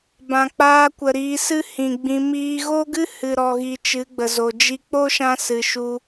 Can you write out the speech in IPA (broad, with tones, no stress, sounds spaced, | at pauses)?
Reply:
b ã˨ k͡p aː˧ kʷ ə˨ ɾ iː˧ s ɨ˦ h ĩ˨ ɡ͡b ĩ˧ m iː˦ ɣ o˦ ɡ ɨ˦ h ɨ˨ ɾ ɔ˨ ɣ i˨ t͡ʃ ɨ˨˦ ɡ͡b ə˨ z o˨ d͡ʒ i˦ k͡p o˦ ʃ ã˧ s ɨ˨ ʃ u˧